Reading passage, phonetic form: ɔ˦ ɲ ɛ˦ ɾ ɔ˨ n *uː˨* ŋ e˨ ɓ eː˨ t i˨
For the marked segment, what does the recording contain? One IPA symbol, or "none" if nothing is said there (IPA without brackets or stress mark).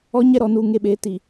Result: uː˨